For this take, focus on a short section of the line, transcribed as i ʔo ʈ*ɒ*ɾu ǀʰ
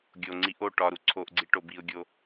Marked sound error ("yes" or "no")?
no